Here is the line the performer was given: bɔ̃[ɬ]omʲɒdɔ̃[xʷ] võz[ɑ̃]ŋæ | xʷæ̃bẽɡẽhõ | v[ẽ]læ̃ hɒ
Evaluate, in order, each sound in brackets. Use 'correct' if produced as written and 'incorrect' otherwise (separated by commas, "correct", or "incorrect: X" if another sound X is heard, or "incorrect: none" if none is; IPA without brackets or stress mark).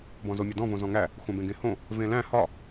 incorrect: z, incorrect: none, incorrect: ɔ̃, correct